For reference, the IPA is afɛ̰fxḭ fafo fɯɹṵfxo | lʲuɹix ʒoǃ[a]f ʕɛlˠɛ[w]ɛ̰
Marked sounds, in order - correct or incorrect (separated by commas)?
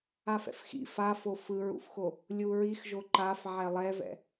correct, incorrect